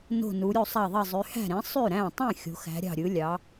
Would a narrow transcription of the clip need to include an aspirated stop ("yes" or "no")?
no